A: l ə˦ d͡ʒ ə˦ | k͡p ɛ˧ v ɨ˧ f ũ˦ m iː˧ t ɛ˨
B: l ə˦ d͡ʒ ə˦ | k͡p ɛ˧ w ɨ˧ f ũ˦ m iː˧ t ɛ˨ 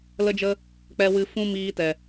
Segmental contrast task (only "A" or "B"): B